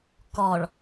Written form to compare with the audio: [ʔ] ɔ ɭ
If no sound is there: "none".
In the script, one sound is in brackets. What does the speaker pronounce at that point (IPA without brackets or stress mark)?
k